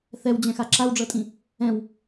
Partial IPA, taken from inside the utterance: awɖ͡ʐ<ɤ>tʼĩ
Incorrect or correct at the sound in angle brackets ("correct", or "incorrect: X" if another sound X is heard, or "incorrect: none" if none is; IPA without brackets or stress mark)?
correct